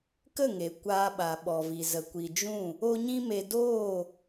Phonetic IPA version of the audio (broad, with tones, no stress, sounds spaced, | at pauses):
k ə˦˨ ŋ e˨ kʷ aː˧ ɓ a˨ ɓ ɔ˨ v i˨ z ə˨ kʷ i˨ d͡ʒ ũ˦˨ | o˦ ɲ ĩ˦ m e˧ d oː˦˨